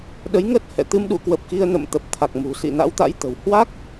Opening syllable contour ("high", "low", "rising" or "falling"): rising